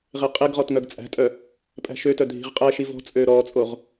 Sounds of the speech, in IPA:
ʁ e qʼ e ɡ ʁ ɔ t ŋ œ ɡ t͡sʼ æ̤ tʼ œ | pʼ æ̤ ʃ ø t œ dʱ i̤ ʁ qʼ æ ʃ i v ɔ̤ t͡sʼ ø ɾ ɔ t͡sʼ o ʁ

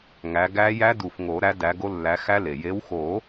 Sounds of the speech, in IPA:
ŋ æ˨˦ ɡ æ˦˥ j æ˦˥ d u˨˩˦ f ŋ o˨˩˦ ɾ æ˨˦ d æ˨˦ ɡ o˦˥ lː æ˨˦ x æ˦˥ l e˩ j e˨˦ w x o˨˩˦

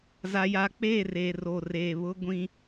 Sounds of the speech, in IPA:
z a˦ j a˦ k͡p eː˦˨ r eː˨ r o˨ r eː˨ β ʊ˦ ɡʷ ĩ˦

